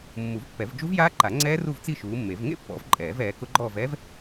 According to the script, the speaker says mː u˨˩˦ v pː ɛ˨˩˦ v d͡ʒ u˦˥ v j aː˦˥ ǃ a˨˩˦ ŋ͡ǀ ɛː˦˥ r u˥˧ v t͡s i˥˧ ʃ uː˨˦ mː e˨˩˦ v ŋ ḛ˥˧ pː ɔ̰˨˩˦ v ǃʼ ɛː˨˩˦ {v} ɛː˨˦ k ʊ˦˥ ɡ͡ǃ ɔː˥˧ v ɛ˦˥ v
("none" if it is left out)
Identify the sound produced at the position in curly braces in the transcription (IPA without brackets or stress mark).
v